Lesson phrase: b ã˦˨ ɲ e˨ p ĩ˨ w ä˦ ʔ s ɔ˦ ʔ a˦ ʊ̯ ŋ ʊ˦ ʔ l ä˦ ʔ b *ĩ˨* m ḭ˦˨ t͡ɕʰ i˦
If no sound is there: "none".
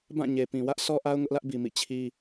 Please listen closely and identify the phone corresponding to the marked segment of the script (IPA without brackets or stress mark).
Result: i˨